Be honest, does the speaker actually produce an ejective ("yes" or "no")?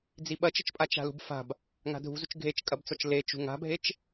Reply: yes